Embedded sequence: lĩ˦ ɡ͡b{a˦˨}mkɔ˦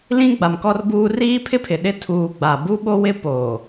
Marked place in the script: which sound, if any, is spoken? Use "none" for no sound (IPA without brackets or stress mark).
a˨